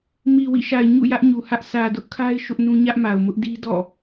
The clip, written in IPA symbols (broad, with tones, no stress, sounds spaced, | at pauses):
m i˨ w ḭ˦˨ ʃ a˨ ɪ̯ ɲ ṵ˦˨ j ä˦ ʔ ɲ u˨ h ä˦ ʔ sʰ ä˨ d ʊ˦ ʔ kʰ a˦ ɪ̯ ʃ ʊ˦ ʔ n ũ˦ ɲ ä˦ ʔ m a˨ ʊ̯ m ʊ˦ ʔ d i˦ d ɔ̰˦˨